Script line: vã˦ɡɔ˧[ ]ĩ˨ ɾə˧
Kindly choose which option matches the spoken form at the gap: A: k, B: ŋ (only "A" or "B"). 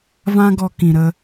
A